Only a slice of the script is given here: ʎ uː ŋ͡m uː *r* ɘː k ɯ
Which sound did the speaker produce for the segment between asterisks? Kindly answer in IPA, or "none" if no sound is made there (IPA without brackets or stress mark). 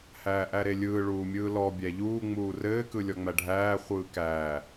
r